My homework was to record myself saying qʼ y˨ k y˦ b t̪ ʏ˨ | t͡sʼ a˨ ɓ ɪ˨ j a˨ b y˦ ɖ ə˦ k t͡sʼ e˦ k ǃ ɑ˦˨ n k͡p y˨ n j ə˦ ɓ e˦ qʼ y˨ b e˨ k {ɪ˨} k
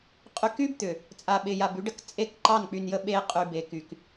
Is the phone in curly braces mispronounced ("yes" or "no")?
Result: yes